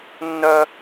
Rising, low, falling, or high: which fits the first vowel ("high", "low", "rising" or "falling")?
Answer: high